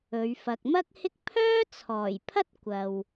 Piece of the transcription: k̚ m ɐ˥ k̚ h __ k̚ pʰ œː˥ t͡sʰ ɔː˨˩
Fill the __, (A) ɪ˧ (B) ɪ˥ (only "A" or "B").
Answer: B